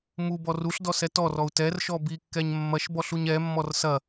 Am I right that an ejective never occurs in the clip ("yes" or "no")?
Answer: yes